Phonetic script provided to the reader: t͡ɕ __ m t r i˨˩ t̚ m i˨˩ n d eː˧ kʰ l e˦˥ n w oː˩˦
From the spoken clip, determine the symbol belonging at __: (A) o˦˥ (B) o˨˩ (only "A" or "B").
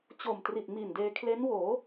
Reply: B